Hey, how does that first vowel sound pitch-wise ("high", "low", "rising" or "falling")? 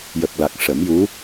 low